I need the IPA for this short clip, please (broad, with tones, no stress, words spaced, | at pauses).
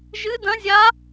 ʒɨ˦˥dɐ̃˦˥zʲa˦˥